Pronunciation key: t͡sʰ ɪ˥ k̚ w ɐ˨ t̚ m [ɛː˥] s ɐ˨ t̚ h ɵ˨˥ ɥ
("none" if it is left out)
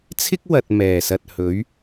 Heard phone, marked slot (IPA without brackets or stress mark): ɛː˨˩